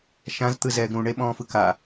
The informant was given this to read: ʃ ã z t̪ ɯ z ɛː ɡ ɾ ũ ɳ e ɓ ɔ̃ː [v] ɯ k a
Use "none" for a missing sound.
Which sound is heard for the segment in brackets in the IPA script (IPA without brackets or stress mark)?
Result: f